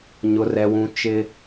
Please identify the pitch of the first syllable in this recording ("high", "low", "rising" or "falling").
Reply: high